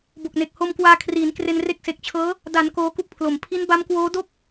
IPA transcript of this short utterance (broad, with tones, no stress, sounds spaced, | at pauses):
b o˨˩ k̚ n e˨˩ k̚ h o˧ m k w aː˧ kʰ r iː˩˦ n k r e˧ n r e˦˥ k̚ s e˨˩ k̚ t͡ɕʰ ɤː˦˥ | d a˩˦ n k oː˦˥ k u˥˩ k̚ pʰ l o˨˩ m pʰ i˦˥ n b a˦˥ m k w oː˦˥ d o˥˩ k̚